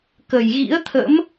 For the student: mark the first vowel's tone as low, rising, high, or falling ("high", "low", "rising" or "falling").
low